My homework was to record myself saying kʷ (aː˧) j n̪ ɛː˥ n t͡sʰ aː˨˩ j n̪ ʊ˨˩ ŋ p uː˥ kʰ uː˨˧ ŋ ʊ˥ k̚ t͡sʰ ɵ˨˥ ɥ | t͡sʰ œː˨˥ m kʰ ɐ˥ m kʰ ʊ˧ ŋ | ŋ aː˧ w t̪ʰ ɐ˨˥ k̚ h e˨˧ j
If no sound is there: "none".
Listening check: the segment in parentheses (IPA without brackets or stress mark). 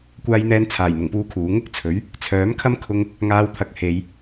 aː˥